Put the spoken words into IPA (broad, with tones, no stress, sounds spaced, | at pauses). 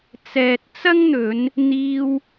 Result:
t͡s ɛː˨ t̚ t͡s ɐ˥ ŋ n̪ ɵ˨˧ n | n̪ iː˧ w